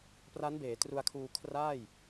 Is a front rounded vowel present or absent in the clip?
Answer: absent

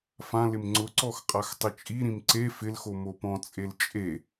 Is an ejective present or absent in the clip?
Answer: present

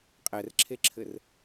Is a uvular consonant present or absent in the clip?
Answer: present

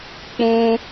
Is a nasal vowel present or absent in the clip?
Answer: present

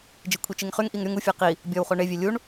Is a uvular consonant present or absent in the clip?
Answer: present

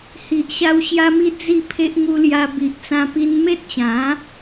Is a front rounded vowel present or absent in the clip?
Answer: absent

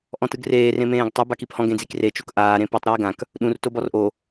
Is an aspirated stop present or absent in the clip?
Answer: absent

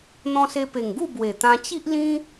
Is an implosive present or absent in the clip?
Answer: absent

